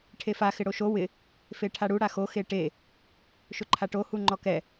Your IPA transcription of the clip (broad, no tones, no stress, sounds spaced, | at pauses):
ʈʰ e f a x ɪ ɽ o ʃ o w ɪ | f e ʈʰ a ɽ u ɽ a x o x e ʈ e | ʃ ʊ ǃʰ a ʈ o h u ŋ͡ǃ ɔ k ɛ